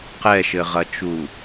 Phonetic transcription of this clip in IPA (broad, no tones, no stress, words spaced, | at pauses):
qɛʃɘʁɐt͡ʃu